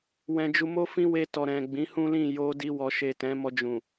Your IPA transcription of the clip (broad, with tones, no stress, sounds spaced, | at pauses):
w ɛ̃˧ d͡ʒ u˧ m o˦ f ĩ˦ w e˧ t ɔ˨ ɾ ɛ̃˨ ɡ͡b ĩ˨˦ h ũ˦ l ĩ˦˨ j o˧ d i˧ w ɔ˨ ʃ e˨ t ɛ̃˨˦ m ɔ˧ d͡ʒ ũ˨